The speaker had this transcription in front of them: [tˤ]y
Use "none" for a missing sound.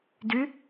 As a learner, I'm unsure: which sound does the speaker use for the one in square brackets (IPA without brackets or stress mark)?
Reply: d